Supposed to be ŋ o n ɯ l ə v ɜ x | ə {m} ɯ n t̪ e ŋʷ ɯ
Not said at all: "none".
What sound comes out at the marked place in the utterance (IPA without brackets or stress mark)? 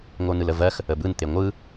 b